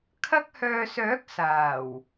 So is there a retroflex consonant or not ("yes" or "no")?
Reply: no